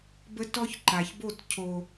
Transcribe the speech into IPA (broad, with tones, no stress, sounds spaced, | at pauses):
b ə˦ t ɔ˦ ç ǃ a˨ ç b o˦˨ t cʰ o˨